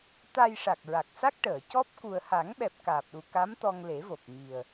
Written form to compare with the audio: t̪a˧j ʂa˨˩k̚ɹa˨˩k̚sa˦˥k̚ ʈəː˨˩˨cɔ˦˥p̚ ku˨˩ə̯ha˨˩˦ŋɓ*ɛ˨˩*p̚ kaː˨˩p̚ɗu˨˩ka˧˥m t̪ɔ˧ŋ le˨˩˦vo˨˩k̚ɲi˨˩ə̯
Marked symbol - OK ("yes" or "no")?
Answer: yes